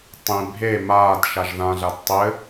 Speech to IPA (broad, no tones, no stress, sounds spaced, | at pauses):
tˤ ĩ bʱ e m aː d ʃ a ʒ ð ã ɮ a d tˤ ɘ